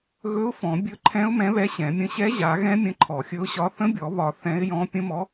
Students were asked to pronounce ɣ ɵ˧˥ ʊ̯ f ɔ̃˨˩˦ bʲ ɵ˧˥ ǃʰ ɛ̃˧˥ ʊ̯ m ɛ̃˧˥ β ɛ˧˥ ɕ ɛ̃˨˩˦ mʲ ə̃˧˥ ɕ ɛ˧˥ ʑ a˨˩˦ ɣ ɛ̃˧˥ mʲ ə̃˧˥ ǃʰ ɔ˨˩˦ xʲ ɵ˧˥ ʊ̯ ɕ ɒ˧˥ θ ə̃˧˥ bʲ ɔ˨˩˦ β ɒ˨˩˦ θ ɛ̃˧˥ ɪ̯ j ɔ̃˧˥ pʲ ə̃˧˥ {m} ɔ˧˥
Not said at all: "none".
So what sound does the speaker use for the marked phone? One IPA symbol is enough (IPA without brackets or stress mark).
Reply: m